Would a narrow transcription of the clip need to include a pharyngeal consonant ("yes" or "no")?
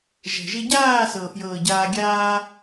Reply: no